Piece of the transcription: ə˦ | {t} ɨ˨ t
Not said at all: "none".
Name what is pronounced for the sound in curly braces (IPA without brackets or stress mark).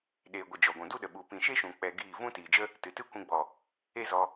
t